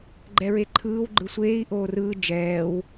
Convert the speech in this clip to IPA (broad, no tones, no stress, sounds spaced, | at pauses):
ɡ͡ǃ ɛ ɹ e ǃʰ ɯː w ɡ͡ǃ ɯ sʷ eː i̯ ʔ oː r ɯː d͡ʒ ɛː w